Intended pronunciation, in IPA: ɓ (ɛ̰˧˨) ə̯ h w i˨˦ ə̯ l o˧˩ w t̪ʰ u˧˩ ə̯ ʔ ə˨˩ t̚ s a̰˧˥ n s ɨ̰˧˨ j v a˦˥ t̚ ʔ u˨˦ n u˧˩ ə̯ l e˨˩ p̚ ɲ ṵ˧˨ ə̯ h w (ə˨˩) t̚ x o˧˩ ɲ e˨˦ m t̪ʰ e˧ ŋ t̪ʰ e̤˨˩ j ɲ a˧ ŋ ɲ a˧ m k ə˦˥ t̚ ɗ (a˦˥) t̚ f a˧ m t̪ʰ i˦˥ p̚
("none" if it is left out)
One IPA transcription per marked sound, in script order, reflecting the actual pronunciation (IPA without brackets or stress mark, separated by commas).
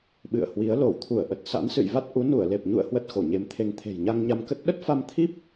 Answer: ɨ̰˧˨, ə˦˥, ə˦˥